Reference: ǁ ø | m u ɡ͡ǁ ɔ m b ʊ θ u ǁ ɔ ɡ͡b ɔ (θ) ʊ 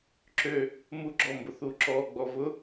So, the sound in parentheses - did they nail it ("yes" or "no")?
no